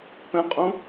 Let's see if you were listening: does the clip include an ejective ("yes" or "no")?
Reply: yes